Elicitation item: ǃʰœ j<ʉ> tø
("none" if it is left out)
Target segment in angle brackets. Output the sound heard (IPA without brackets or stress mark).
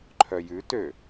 ʉ